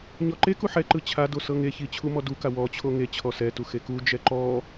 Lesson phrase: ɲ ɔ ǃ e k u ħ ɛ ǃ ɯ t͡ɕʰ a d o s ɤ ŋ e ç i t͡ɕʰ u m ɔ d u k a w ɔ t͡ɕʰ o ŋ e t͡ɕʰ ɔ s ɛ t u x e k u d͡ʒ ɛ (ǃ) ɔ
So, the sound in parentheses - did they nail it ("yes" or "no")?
yes